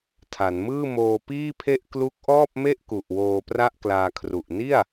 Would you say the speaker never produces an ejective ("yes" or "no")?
yes